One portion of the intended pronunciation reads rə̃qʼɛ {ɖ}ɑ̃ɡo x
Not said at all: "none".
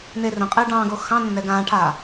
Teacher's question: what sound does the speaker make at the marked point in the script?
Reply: ɖ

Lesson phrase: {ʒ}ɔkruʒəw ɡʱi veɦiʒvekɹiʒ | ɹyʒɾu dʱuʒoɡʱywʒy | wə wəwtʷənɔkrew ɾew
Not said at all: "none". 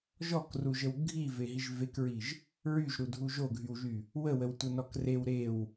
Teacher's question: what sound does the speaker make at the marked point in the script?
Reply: ʒ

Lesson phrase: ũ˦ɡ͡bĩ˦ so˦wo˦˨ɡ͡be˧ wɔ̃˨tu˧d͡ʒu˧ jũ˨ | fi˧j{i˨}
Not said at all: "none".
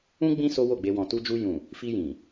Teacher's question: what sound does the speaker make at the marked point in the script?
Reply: ĩ˨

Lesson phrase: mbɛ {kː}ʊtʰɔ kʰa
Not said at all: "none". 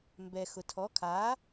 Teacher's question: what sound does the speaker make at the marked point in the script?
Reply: x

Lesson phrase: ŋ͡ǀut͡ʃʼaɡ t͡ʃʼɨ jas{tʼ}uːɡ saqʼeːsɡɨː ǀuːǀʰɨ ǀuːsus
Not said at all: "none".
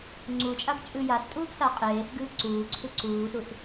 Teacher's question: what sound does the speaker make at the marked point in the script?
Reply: tʼ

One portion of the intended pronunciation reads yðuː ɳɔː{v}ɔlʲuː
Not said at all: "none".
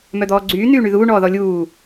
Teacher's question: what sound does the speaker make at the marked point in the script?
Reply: ð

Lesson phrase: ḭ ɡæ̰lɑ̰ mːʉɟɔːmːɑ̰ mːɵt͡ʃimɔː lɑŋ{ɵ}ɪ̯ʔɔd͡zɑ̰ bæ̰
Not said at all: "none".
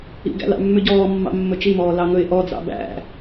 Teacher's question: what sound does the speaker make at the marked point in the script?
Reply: ɵ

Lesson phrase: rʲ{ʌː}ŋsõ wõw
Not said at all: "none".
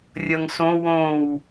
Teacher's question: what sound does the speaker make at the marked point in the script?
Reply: ʌ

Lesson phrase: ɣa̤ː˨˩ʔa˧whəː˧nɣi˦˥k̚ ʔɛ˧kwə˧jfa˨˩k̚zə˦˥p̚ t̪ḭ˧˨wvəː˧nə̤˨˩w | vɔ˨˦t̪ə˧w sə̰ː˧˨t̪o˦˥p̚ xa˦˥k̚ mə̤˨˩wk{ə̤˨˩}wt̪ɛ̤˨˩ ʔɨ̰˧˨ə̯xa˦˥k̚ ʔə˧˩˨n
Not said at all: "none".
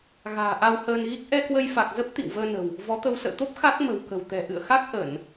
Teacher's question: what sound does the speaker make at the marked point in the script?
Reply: ə̤˨˩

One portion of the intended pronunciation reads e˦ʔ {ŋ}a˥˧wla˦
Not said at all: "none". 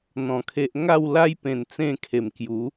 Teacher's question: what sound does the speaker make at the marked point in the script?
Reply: ŋ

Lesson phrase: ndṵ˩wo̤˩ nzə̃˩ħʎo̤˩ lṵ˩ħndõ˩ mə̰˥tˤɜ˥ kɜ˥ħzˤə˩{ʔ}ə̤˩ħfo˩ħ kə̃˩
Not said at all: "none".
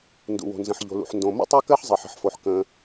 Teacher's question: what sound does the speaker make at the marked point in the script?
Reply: ħ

